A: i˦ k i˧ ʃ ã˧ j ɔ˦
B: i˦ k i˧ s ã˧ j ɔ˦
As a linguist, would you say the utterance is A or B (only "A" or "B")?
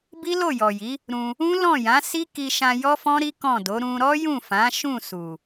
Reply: A